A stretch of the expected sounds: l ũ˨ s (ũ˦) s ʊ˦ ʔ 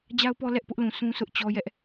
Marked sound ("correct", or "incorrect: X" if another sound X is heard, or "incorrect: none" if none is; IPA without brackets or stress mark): correct